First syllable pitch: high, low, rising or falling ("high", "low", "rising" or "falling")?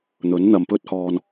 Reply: rising